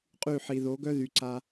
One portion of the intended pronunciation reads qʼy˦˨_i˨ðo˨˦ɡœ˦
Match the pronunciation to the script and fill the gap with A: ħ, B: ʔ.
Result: A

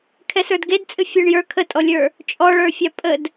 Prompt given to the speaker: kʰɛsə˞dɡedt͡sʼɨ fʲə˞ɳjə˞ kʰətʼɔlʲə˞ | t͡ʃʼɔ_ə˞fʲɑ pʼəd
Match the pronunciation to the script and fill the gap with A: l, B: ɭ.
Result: B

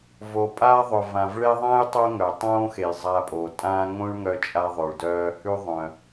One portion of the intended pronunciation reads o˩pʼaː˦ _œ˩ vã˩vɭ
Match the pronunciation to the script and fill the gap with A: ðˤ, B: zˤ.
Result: A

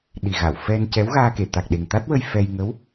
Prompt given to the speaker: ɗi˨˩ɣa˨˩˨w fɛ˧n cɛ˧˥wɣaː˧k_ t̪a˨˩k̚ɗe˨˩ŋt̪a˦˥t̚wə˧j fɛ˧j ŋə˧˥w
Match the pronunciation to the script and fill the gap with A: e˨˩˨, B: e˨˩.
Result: A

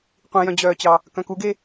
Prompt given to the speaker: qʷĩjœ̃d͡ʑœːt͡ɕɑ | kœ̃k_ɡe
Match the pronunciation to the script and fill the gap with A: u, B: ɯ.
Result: A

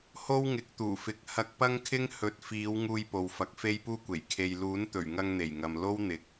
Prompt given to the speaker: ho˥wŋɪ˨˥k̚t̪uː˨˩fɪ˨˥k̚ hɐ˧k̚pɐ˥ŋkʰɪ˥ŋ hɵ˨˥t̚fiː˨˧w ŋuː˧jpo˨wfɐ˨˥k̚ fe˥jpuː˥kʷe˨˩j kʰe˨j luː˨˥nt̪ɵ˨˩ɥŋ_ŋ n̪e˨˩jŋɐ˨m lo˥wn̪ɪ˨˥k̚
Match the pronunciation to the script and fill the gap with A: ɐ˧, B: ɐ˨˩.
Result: A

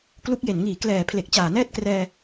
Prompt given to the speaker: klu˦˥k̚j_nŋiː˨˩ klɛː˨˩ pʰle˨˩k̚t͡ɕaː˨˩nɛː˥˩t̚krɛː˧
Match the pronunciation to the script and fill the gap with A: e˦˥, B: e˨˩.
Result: B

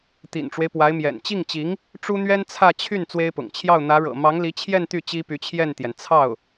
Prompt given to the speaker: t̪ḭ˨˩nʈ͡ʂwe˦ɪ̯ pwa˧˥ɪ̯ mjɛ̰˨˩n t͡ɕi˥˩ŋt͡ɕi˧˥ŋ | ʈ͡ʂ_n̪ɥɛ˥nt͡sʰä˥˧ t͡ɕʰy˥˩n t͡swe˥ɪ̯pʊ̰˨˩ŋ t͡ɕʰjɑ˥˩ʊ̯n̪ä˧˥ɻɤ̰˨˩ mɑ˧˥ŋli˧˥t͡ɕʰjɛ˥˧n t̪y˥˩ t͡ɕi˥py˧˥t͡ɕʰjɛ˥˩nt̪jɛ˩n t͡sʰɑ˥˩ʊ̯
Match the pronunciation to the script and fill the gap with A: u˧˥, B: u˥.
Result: B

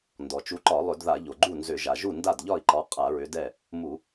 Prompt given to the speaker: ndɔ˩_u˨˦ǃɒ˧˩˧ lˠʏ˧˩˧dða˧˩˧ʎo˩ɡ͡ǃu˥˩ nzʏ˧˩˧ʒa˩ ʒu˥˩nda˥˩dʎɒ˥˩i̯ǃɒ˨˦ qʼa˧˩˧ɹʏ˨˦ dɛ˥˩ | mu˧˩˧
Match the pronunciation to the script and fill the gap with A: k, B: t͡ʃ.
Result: B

